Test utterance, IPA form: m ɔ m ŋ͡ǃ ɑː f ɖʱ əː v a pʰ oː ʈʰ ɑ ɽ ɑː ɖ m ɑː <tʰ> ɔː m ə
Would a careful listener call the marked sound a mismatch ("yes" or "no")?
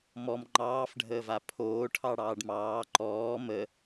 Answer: yes